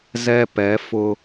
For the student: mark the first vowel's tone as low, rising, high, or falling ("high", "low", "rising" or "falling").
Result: high